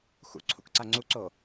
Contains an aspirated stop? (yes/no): yes